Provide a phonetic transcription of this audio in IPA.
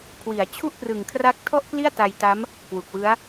kʰ w i˩˦ a̯ t͡ɕʰ u˥˩ ʔ p r ɯ˨˩ ŋ kʰ r a˦˥ k̚ tʰ ɔ˥˩ ʔ k l i˥˩ a̯ t a˧ j t a˦˥ m | k w u˨˩ k̚ w ɯ˦˥ a̯

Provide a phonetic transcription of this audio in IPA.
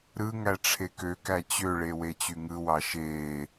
ɾ ɯ ŋ æ ʈ͡ʂʰ e k ø k æ t͡ɕ ø ɭ e w e t͡ɕ y ŋ ɯ w ɑ ʃ eː

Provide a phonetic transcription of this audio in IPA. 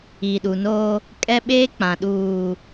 i˨ ɗ u˨ n oː˦ | kʼ ɛ˦ ɓ eː˦ k͡p ã˨ ɗ uː˨

